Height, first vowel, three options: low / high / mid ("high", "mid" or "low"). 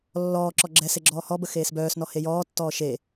mid